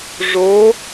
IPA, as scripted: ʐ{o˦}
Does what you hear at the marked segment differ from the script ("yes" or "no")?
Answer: yes